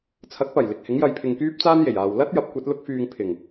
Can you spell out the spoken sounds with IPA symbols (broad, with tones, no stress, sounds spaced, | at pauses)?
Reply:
t͡sʰ ɐ˨˥ k̚ p ɐ˨˩ j l ɪ˨ k̚ h ɪ˨˥ ŋ j ɐ˧ j pʰ ɪ˧ ŋ k yː˥ p̚ t͡s aː˥ n j e˨˩ j aː˨ w l ɐ˥ t̚ j ɐ˨˥ p̚ kʷ ɐ˨˥ t̚ l ʊ˥ k̚ f yː˧ ŋ pʰ ɪ˨˩ ŋ